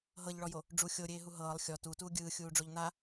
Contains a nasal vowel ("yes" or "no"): no